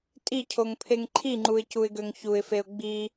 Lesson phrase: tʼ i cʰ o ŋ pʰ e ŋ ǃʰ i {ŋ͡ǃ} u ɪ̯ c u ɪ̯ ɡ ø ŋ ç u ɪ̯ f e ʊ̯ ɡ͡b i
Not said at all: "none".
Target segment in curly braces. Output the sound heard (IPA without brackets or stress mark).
ŋ͡ǃ